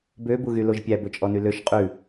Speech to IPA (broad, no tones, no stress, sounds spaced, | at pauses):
b ø b u ɣ y l o ʒ pʲ æ b ɵ t͡ʃʼ ɔ n y l ø ʃ qʼ ʉ